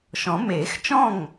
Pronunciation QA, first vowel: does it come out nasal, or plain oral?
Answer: nasal